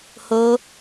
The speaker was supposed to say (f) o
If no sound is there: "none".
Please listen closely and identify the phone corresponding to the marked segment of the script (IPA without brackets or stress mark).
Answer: h